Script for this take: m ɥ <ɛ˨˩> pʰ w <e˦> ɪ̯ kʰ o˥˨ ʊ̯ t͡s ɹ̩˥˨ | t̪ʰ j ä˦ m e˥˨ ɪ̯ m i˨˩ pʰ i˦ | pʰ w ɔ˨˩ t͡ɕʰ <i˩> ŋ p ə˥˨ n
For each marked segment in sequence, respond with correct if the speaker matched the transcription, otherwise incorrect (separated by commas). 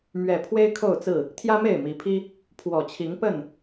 correct, correct, incorrect